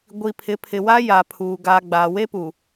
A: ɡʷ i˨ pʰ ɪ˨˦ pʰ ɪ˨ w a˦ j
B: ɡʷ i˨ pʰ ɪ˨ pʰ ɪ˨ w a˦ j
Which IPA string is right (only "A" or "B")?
A